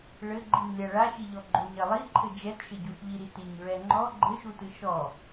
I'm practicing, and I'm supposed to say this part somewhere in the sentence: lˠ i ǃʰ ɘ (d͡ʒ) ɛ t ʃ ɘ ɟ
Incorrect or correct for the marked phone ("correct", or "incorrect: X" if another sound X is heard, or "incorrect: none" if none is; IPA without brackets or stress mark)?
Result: correct